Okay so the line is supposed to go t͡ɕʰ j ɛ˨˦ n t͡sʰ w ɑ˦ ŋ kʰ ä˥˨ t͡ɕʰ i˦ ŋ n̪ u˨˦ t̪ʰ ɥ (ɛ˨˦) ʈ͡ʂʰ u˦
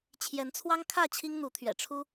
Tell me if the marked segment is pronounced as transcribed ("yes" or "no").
no